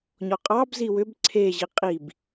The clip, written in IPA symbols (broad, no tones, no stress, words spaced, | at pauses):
ɲɔqʼɑbzi wʏb ǀʰeʑi qʼib